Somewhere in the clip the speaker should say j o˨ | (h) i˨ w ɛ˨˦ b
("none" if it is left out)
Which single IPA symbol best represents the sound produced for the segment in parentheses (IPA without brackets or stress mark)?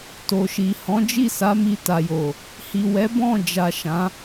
h